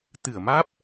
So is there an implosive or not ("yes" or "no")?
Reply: no